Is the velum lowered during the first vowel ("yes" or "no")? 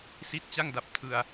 no